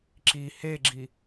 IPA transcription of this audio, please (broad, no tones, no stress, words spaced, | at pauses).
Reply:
ǁi heɡ͡ǁi